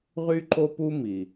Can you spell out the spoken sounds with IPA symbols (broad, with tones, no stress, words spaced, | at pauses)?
ʁy˥ǃo˥pu˥ mi˩